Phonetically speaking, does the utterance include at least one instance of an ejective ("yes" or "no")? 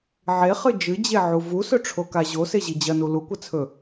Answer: no